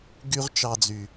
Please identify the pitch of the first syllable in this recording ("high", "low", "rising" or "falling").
high